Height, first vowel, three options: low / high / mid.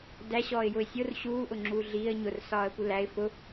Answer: low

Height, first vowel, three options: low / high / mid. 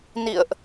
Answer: high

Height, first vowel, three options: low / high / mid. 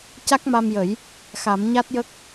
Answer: low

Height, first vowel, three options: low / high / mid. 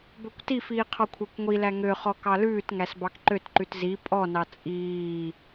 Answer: mid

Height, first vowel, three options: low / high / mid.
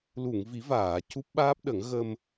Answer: high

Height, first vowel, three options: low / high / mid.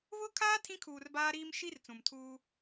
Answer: high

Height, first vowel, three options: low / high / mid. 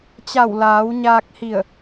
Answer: low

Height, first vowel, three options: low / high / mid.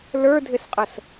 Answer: mid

